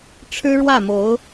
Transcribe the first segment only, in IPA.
ʈ͡ʂʰ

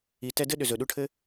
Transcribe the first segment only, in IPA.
i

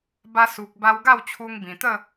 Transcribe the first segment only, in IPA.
b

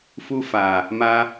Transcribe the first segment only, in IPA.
f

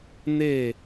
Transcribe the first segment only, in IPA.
n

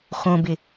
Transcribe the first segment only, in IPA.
x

